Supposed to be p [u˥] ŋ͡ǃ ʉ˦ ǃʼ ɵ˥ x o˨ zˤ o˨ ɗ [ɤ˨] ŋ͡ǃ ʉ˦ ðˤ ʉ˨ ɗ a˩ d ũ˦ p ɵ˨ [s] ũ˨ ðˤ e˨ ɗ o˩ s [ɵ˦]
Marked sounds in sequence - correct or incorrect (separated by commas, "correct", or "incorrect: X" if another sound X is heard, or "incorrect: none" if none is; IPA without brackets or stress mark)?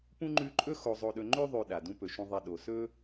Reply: incorrect: ũ˥, incorrect: ɵ˨, incorrect: ʃ, incorrect: ɵ˥